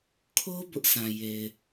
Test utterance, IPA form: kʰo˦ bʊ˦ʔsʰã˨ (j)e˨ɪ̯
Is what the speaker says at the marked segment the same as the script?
yes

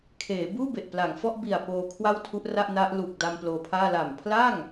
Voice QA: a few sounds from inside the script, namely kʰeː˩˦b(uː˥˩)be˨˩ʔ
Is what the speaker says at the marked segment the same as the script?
yes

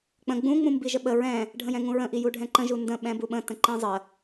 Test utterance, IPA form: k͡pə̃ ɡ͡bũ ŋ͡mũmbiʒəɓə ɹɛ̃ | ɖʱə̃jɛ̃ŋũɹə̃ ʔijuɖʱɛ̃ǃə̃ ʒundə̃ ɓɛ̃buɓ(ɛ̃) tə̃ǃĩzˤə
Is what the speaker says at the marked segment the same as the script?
no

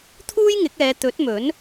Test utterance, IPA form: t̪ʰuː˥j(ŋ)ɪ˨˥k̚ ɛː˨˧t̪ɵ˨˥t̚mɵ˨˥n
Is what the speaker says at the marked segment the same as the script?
yes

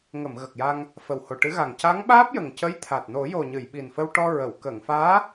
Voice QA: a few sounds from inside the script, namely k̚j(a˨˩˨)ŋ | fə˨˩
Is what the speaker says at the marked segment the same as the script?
no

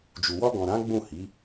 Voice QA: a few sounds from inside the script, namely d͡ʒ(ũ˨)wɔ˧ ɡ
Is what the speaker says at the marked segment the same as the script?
no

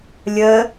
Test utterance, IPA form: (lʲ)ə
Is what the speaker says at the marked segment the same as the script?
yes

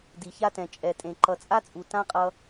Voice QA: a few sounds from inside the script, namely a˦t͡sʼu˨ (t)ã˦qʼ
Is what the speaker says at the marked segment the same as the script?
yes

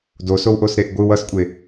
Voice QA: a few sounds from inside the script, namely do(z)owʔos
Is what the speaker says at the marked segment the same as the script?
no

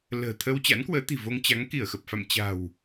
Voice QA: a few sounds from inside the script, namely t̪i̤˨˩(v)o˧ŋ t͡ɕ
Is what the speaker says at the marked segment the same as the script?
yes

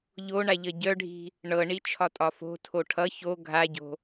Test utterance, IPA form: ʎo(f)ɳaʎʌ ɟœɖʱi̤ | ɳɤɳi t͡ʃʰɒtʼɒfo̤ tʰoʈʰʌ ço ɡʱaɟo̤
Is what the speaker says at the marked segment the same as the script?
no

